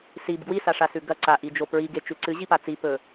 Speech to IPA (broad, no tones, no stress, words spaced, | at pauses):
sib ɡwisaʂasʉ ɡɐ ǀaʔid͡ʒo pɹiɡet͡ʃʉ ǀɨʑipa t͡sipɵ